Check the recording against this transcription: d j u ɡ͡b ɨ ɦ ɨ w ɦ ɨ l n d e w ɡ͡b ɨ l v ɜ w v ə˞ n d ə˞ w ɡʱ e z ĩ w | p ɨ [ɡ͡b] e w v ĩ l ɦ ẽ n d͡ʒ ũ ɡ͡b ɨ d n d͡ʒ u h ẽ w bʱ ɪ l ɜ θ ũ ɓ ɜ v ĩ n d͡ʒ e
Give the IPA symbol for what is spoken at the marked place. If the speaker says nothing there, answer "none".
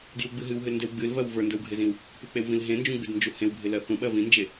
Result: k͡p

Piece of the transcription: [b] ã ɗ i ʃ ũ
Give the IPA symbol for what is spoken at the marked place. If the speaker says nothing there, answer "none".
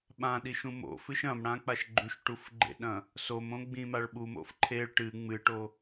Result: ɓ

